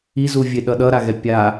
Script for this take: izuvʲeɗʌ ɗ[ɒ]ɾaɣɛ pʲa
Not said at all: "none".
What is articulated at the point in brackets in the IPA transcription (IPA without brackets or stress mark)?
ʌ